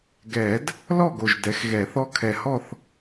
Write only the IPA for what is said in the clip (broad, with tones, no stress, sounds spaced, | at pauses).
ɡ ɛː˨˩˦ d | l ɔ˥˨ ɡ o˨˩ ʒ d ɛ˩˥ x ɣ ɛː˨˩˦ θ ɔ˧˥ kʰ ɛ˨˩ h ɔ˥˨ θ